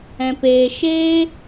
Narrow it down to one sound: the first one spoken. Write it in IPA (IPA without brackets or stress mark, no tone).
ɛ̃